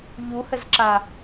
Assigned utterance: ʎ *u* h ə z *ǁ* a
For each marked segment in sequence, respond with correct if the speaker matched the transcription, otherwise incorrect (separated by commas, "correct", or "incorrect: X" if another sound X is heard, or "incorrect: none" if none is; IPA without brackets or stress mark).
correct, correct